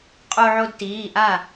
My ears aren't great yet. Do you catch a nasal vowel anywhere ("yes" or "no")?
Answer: no